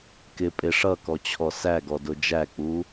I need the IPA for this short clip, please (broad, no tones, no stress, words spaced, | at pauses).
kɪ pʼɪ ʂʌkɔt͡ɕʰɔ sæɡɔdʊ d͡ʒæk͡pu